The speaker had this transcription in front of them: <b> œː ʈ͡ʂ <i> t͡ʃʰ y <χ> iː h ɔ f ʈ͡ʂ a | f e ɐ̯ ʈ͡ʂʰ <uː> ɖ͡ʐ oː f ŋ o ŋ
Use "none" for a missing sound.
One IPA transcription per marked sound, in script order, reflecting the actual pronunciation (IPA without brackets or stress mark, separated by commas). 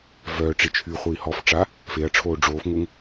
v, i, χʷ, oː